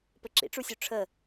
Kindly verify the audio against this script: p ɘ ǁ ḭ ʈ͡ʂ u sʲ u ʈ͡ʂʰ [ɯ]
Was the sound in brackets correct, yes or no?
no